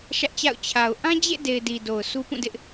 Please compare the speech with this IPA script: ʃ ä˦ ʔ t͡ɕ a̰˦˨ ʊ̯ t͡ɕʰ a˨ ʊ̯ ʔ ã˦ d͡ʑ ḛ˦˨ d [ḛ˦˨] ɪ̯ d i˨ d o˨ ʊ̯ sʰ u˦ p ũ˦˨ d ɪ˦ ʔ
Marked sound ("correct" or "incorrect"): incorrect